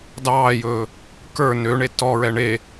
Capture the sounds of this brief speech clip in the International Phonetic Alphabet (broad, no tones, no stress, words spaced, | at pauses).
dɑːjɵː | kə˞ nøɳe tɔɹɛ ɳe